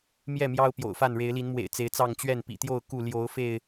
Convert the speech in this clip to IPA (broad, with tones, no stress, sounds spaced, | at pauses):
m j ɛ˥˨ m j ɑ˦ ʊ̯ p j o̰˨˩ ʊ̯ f a˥˨ n ɻ e˨˦ ɪ̯ l i˨˦ n m w ḛ˨˩ ɪ̯ t͡s e˨˦ ɪ̯ t͡s ɑ˥˨ ŋ t͡ɕ ɥ ɛ˥˨ n p ḭ˨˩ t̪ j o˥˨ ʊ̯ k u˥˨ l j o˨˦ ʊ̯ f e˥˨ ɪ̯